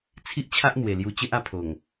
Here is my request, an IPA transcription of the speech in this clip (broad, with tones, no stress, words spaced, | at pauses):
t͡sʰi˦ʔt͡ɕʰa˦ʔn̪we˨˩ lju˧t͡ɕe˦ʔa˧pʰo˨˩ŋ